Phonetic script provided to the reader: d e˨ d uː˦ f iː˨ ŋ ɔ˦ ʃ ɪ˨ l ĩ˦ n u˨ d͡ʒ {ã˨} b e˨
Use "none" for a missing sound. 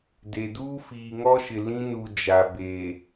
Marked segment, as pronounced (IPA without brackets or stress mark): a˨